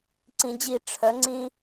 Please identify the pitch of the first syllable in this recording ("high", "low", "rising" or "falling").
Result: low